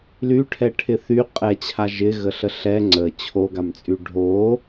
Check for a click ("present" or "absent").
present